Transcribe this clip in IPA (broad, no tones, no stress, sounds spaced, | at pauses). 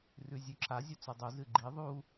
r ʉ zʲ ʉ ǁʰ a zʲ ɵ t͡s u dˤ u z ɨ ɡ͡ǃ i ðˤ u